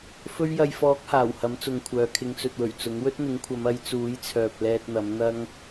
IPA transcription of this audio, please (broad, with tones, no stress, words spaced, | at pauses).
fɵ˧ɥjɐ˨jfɔː˨˥k̚ haː˨˩whɐ˨˥mt͡sʊ˨ŋkʷʰœː˨ kʰɪ˨˧ŋt͡sɵ˨t̚wɵ˨˩ɥ t͡sʊ˨˥ŋ wɵ˥t̚n̪ɪ˨˥ŋkʷʰɐ˨˧m ɐ˨˧jt͡suː˨˥j t͡sʰœː˨p̚ lɛː˧t̚n̪ɐ˨˥mn̪ɐ˥ŋ